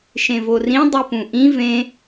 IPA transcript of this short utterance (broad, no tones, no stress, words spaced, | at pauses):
ʃẽvorĩ dˤipũʔĩ vẽ